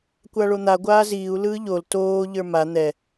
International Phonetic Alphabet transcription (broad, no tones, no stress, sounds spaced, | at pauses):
kʷ a ɭ o n̪ a ɡʷ aː z iː u̯ l ɯː ʎ o l t oː ʎ ə˞ m a n̪ ɛ